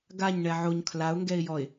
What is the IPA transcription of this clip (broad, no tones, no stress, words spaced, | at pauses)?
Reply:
ɡaɲɳɛ ʕoɲ kʰlaʊ̯ŋɡɛɪ̯ jɔɪ̯